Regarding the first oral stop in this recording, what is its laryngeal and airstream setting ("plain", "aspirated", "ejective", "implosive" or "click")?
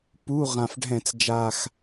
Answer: plain